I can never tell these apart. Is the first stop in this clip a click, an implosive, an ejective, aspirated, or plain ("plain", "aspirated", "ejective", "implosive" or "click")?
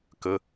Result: plain